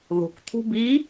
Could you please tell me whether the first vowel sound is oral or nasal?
oral